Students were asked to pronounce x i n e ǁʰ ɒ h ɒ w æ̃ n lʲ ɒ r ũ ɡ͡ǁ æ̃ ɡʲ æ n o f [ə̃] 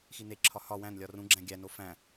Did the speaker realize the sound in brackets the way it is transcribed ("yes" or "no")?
no